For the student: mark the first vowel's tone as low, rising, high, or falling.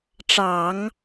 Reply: low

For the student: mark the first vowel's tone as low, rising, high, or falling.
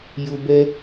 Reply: high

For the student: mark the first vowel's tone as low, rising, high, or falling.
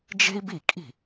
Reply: high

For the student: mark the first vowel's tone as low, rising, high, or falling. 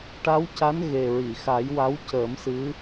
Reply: rising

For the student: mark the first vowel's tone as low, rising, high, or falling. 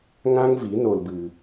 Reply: high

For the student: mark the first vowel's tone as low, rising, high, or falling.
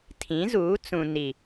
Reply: rising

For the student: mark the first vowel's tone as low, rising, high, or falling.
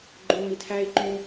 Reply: low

